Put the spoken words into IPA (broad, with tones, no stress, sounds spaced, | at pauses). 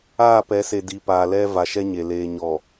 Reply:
aː˦˨ p ɛ˨˦ s e˨ d i˨ p aː˨ l ɛ˦ v a˨ ʃ ɛ˦ ɲ e˨ l eː˨ ɲ ɔ˨